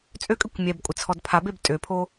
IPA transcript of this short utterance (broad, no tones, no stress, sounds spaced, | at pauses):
t͡sʼ ø kʼ ø kʷ mʲ ɛ b kʷʼ ɪ t͡sʰ ɔ d pʰ a b e b tʼ ø pʰ o